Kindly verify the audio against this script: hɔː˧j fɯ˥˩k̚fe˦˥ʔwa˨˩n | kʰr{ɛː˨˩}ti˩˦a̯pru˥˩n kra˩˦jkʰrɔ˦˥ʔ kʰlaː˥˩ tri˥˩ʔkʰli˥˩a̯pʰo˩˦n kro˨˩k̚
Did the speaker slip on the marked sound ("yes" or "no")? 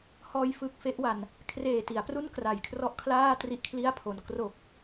yes